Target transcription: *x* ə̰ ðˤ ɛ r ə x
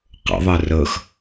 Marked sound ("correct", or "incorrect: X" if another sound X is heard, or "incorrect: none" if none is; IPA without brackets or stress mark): incorrect: q